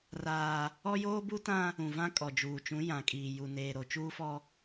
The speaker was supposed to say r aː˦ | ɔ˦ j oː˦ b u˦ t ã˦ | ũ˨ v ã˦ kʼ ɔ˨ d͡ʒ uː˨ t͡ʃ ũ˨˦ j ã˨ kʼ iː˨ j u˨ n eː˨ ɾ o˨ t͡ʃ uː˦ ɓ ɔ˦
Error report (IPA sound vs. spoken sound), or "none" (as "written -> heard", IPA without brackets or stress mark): ɓ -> f